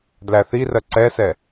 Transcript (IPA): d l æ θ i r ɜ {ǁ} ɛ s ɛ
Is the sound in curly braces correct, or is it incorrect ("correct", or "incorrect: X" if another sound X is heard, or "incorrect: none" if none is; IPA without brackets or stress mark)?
incorrect: ǀ